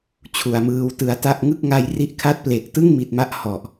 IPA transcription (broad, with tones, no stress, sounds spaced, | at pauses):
t͡ɕʰ u˨˩ a̯ m ɯː˧ w t ɯ˧ a̯ t a˥˩ ʔ ŋ ɯ˥˩ k̚ ŋ a˧ j r i˦˥ ʔ kʰ a˦˥ t̚ p l e˨˩ k̚ t ɯ˥˩ ŋ m i˨˩ t̚ m a˦˥ ʔ h ɔ˨˩ ʔ